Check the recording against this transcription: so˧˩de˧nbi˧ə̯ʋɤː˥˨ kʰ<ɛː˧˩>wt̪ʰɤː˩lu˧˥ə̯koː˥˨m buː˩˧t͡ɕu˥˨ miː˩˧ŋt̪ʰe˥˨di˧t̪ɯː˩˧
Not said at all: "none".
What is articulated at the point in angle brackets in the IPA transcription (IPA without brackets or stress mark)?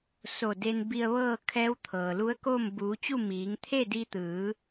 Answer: ɛː˧˥